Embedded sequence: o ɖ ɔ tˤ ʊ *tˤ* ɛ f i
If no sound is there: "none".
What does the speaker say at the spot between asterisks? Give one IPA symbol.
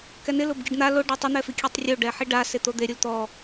n̪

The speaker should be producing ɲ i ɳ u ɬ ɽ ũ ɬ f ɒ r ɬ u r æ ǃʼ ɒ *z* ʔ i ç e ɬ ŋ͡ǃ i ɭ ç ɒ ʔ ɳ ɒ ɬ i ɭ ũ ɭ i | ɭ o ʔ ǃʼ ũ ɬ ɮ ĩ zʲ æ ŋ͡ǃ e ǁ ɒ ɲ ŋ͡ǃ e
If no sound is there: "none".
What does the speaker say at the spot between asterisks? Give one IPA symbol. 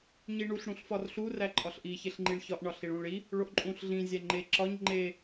ɬ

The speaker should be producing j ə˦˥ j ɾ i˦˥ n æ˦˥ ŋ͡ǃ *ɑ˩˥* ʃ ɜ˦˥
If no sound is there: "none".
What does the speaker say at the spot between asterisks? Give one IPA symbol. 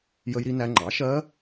ɑ˩˥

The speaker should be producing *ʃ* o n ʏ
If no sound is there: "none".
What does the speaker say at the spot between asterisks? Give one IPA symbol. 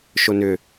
ʃ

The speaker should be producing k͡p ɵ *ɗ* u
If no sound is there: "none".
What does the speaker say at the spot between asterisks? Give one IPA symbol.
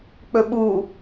ɓ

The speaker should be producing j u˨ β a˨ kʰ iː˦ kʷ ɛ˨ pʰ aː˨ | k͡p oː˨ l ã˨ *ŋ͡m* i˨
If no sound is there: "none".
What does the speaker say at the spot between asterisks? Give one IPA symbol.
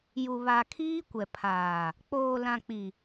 k͡p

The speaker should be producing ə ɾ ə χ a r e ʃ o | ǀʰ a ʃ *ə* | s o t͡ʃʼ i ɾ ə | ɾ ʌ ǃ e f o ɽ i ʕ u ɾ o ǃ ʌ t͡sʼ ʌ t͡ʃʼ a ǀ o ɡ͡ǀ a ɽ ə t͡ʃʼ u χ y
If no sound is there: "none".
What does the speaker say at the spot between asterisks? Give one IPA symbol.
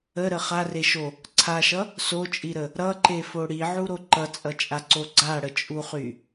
ʌ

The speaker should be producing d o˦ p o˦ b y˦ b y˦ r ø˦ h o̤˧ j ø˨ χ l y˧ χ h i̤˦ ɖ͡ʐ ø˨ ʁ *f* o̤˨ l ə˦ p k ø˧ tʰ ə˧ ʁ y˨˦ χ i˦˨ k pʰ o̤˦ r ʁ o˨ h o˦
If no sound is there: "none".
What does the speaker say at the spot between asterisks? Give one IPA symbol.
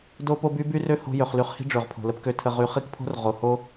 pʰ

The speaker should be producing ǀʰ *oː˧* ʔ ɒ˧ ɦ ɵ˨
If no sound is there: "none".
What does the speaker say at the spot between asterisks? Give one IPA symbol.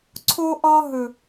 o˧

